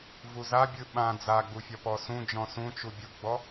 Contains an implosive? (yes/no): yes